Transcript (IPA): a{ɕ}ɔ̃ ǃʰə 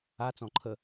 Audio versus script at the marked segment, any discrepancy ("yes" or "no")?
yes